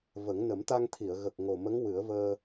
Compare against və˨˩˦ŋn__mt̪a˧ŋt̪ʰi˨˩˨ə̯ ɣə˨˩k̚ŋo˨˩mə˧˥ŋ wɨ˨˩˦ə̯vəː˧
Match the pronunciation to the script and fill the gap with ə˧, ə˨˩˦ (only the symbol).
ə˨˩˦